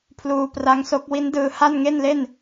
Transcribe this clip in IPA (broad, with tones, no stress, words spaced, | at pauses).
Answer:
pʰluː˧pra˦˥ŋso˦˥k̚ wi˦˥ndɯː˧ ha˥˩nŋe˥˩nle˥˩n